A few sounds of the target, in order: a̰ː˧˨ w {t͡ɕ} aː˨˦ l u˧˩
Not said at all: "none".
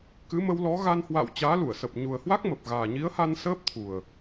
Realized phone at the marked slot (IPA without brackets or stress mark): t͡ɕ